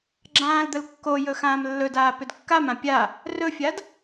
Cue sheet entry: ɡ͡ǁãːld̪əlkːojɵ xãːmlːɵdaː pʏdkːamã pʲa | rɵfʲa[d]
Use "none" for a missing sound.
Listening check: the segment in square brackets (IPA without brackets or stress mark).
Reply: d